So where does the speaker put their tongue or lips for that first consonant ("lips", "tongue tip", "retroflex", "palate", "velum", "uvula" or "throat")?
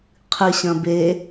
uvula